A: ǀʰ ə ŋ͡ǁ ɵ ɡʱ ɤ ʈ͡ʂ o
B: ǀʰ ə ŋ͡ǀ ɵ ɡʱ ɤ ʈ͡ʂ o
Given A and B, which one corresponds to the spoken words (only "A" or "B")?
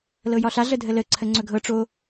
B